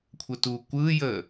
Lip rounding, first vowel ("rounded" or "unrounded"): unrounded